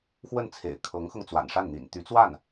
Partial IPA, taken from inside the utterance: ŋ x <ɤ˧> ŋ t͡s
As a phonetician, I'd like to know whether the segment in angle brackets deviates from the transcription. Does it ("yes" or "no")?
no